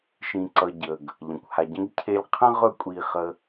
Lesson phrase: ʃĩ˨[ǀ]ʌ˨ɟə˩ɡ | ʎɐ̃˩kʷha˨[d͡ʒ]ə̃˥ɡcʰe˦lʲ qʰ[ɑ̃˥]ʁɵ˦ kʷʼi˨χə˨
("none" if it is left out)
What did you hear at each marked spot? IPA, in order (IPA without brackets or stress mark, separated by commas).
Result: ǀ, ɟ, ə̃˥